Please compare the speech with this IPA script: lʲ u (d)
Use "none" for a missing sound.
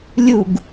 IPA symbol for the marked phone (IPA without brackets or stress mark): ɡ